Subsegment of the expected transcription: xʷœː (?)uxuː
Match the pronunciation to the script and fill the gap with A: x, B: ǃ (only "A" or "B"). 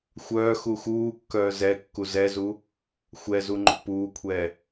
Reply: A